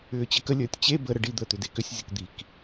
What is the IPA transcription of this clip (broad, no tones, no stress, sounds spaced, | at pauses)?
ʏː t͡ɕ ə k ə lʲ əː tʲ t͡ɕ e b ə ɾ ə ɖ i d̪ əː t̪ ʏ d e k ʏ sʲ zʲ ə k d̪ i k